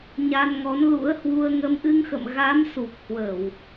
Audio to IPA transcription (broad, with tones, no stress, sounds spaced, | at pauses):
ɲ a˧ n ŋ ɔ˨˦ n l ṵ˧˥ ə̯ h w u˧ ə̯ ŋ ə˨˦ m ʔ ɨ˧ ŋ x ə̰˧˨ m ɣ a˨˦ m s u˨˩ k̚ h w ə˧˩˨ w